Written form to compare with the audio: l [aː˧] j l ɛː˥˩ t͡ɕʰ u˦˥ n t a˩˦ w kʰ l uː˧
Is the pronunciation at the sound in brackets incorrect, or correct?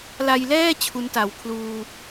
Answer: incorrect: a˧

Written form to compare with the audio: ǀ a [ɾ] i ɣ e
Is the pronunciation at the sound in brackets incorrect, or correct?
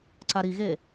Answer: correct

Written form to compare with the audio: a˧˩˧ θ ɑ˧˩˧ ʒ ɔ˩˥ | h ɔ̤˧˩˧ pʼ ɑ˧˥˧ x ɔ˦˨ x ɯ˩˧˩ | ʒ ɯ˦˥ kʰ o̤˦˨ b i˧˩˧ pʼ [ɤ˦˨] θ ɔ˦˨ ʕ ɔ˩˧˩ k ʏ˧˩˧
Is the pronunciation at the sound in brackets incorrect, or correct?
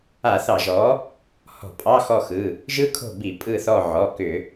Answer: incorrect: ɯ˦˨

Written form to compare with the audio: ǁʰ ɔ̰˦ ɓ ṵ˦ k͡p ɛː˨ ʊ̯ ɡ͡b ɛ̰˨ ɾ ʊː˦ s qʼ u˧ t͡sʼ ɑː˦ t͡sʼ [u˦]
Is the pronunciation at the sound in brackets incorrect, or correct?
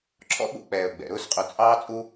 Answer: correct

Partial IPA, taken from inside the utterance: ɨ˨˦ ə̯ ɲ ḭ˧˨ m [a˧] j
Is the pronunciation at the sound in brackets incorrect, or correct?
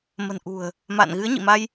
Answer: correct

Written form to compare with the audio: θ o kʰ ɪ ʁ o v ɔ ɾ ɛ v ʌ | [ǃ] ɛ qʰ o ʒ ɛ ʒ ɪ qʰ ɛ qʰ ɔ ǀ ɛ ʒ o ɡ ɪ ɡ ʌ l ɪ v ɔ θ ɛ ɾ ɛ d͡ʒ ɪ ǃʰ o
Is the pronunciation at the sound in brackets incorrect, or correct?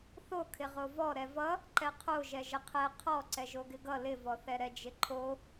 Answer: correct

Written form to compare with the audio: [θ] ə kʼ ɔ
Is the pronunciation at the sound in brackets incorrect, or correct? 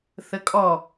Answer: correct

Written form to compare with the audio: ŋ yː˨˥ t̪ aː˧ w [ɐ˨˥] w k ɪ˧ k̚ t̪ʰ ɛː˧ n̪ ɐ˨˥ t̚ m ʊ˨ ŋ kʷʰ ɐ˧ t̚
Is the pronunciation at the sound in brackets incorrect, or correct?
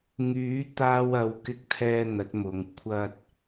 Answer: incorrect: ɐ˨˧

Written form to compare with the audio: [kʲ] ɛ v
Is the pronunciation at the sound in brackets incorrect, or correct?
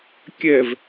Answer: correct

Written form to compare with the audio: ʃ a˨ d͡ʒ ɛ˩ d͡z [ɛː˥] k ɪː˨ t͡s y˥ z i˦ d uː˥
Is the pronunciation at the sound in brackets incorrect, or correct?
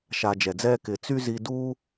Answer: incorrect: ɛː˦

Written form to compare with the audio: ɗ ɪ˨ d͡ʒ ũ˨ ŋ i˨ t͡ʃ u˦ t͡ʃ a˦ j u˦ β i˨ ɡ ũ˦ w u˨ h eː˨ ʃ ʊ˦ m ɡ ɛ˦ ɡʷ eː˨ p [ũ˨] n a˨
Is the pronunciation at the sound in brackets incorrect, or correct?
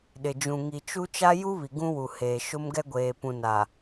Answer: correct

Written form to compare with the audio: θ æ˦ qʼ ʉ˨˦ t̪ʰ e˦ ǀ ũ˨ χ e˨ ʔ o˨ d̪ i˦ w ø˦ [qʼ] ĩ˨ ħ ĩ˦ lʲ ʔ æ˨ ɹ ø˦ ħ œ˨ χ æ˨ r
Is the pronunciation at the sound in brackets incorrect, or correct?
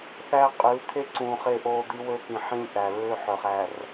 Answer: incorrect: k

